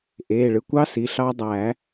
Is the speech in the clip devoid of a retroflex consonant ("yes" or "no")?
no